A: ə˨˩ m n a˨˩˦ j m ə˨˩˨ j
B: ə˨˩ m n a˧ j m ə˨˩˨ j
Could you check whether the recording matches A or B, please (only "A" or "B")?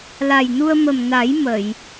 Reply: A